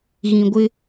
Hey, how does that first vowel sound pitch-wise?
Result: low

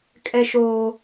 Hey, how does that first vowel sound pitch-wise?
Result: high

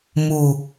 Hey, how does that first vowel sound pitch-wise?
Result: low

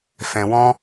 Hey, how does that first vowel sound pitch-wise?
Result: low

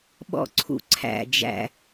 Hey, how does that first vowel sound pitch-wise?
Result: high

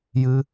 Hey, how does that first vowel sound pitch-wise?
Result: high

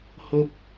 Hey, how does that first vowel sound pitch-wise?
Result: high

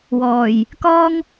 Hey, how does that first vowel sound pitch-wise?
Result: low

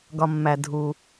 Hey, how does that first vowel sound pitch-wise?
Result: low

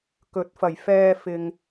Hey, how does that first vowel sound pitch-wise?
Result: rising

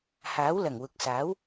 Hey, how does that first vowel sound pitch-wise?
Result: rising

